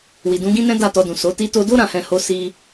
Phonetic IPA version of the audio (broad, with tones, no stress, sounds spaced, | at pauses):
w i˨ d ũ˨˦ ɡ ĩ˦ n ɛ̃˦ d a˦˨ t ɔ˧ d ũ˨ s o˨˦ t i˧ t o˧ d o˦ ɾ ã˧ h ɛ̃˧ h o˦ s i˦